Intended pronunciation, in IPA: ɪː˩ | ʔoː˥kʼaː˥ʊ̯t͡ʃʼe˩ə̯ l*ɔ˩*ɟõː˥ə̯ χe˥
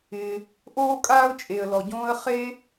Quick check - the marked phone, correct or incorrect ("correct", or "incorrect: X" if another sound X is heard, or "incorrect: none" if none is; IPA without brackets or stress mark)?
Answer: correct